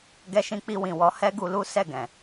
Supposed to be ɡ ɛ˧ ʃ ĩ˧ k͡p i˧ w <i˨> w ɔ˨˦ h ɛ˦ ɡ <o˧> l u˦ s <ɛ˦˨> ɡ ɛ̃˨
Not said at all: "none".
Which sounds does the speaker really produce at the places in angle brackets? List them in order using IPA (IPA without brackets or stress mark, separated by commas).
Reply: ĩ˨, u˧, ɛ˦˨